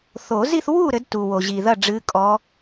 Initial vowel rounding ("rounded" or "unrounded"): rounded